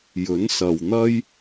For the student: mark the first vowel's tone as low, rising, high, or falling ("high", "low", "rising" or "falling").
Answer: rising